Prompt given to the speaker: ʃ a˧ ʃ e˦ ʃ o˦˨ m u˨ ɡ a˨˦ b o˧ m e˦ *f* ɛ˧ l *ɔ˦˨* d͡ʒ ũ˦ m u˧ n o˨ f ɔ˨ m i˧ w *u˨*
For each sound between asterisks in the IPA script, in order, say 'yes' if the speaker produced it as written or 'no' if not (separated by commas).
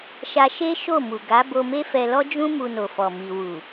yes, no, yes